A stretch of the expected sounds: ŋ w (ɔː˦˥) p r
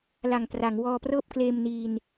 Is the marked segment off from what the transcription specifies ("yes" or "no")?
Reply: yes